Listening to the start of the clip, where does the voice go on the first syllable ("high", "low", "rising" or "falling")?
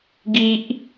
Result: high